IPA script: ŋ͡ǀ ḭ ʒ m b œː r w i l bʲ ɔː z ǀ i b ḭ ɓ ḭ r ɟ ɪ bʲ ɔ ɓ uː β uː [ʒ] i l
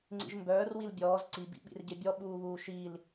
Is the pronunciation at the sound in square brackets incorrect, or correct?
incorrect